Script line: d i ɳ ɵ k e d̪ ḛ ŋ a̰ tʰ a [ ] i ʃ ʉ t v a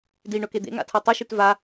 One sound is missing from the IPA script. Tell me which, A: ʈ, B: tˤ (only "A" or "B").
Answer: B